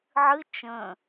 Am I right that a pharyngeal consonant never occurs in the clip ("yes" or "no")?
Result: no